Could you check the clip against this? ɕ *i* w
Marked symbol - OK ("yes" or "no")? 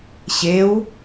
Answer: no